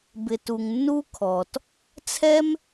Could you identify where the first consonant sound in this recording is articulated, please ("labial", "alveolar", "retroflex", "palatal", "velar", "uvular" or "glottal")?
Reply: labial